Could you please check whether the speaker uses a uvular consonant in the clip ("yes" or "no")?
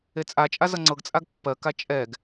no